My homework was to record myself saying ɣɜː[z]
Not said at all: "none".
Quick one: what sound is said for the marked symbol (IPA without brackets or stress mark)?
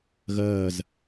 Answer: z